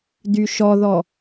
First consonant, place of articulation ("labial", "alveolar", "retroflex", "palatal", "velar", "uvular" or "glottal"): alveolar